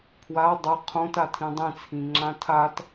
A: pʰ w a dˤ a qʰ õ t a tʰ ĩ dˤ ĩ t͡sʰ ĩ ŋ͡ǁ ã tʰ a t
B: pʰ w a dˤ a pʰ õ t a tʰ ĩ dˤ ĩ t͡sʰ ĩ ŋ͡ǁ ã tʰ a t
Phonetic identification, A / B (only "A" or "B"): A